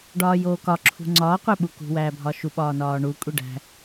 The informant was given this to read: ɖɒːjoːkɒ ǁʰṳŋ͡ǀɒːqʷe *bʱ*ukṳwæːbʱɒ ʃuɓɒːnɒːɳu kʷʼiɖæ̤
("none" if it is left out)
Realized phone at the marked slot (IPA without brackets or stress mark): ɓ